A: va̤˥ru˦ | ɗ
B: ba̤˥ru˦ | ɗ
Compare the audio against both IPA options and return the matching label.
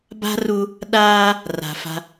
B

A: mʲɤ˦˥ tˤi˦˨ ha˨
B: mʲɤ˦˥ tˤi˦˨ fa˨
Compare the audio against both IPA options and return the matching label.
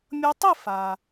B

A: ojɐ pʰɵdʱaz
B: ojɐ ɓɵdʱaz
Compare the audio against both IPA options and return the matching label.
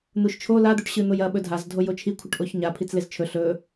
B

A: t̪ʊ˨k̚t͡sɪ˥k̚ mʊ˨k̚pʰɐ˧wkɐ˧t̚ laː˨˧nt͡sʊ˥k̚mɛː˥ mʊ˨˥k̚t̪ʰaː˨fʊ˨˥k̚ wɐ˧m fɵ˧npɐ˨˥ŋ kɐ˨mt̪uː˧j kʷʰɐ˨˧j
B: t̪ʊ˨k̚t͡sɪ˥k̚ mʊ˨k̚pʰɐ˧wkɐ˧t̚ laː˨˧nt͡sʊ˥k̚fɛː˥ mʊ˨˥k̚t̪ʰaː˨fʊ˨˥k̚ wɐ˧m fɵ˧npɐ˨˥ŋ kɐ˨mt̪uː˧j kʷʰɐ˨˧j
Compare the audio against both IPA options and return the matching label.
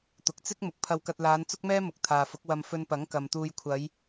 A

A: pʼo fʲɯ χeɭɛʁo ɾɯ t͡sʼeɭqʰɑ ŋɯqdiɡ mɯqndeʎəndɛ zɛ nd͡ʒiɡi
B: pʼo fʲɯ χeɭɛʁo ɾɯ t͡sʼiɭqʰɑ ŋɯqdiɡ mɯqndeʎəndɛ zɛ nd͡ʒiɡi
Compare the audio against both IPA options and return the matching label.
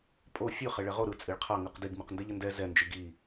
B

